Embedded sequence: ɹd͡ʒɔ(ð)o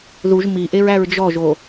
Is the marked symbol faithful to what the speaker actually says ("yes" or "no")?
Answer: no